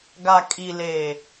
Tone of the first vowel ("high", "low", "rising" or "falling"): low